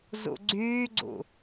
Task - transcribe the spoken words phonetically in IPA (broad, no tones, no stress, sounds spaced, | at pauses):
z ṵ ɡ͡ǀ yː ɡ͡ǀ ṵ